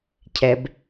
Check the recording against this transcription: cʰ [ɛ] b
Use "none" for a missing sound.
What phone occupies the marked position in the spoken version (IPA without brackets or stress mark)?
ɛ